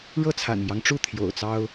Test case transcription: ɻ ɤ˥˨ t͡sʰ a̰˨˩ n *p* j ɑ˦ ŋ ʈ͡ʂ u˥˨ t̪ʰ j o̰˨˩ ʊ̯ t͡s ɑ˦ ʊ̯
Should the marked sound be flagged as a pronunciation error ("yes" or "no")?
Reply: yes